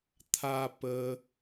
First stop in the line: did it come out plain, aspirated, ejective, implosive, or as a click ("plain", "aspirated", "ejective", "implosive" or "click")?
aspirated